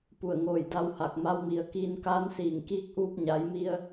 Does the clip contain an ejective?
no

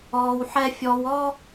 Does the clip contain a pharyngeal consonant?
yes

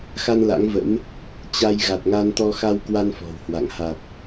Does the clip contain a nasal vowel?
no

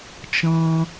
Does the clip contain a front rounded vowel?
no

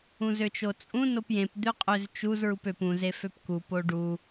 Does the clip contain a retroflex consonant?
yes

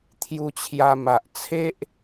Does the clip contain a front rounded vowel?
no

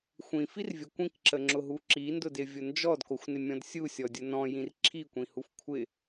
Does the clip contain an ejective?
no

